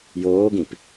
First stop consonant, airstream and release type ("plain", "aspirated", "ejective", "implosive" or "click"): plain